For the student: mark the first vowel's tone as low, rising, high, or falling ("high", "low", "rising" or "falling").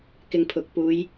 low